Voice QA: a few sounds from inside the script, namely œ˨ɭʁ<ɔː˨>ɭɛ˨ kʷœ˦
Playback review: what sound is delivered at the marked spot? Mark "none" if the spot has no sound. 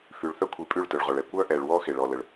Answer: ɔ˨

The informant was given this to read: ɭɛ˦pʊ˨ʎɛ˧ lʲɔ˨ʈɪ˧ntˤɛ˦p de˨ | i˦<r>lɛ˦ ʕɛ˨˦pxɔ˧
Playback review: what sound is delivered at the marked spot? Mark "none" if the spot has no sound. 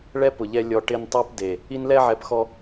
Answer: n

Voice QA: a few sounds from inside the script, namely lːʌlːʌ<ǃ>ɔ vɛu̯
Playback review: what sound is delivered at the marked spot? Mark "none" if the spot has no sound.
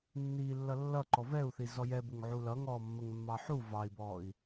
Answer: ǃ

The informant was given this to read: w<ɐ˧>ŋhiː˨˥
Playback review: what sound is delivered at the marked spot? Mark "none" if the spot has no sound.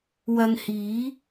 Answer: ɐ˧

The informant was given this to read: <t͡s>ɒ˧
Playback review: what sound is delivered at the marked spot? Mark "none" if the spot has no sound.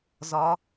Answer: z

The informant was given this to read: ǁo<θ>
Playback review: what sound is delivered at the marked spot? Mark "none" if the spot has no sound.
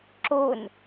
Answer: n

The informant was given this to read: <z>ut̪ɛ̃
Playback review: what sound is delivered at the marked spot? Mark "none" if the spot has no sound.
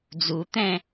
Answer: d͡z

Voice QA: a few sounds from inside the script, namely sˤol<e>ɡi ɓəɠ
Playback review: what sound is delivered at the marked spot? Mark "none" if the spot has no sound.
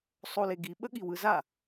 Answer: e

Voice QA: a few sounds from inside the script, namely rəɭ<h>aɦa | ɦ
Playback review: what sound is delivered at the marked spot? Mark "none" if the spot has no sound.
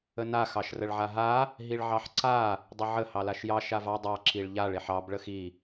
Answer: ʕ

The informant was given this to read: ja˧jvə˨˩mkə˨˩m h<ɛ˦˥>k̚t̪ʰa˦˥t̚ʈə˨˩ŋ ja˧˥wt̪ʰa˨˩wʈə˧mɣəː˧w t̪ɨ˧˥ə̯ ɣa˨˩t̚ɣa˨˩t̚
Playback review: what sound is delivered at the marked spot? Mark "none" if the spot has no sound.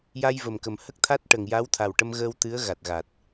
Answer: ə˦˥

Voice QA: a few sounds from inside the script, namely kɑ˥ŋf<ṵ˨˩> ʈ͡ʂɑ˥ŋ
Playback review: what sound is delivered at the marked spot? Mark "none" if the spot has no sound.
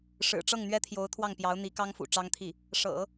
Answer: ṵ˨˩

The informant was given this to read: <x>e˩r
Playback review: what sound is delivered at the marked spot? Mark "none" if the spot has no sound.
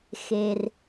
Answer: x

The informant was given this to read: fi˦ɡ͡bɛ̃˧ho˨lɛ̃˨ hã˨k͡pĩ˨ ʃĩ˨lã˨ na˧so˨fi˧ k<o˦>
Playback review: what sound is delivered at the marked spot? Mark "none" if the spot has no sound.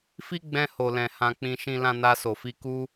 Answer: u˦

